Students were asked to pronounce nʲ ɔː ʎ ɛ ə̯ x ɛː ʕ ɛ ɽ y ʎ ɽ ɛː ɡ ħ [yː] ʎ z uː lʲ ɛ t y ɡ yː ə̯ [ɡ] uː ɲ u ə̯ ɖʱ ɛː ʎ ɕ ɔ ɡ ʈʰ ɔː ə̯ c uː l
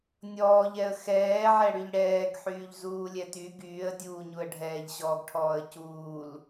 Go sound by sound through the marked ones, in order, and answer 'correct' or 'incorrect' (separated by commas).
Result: correct, incorrect